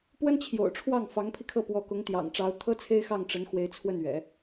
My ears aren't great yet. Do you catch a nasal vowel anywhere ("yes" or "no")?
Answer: no